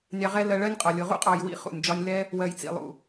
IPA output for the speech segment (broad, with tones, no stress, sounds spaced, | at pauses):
nʲ ɑ˧ ʁ ɛ˦ l ɜ˧ ɭ ɜ˦ nʲ qʼ ɒ˨ lʲ ʊ˨ ʁ ṵ˦ qʼ ɑ˨ j w ḭ˧ χ ṵ˨ nʲ d͡ʒ ɒ˧ nʲ l ɛ˦ | w ɜ˨ j t͡s ḭ˨ lˠ ṵ˨